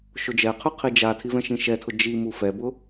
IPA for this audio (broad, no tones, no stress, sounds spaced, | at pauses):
ʃ ʊ d͡ʒ ɛ qʰ ʉ qʰ i d͡ʒ a tʰ i v ɛ̃ ʃ ĩ ʃ ɛ tʰ ʊ d͡ʒ i m u f ɛ b ʊ